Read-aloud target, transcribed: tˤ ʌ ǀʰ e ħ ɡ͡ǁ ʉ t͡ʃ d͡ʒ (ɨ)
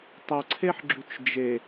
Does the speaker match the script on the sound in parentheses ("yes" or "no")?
no